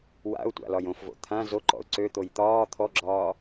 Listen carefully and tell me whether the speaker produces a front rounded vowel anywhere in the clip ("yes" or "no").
yes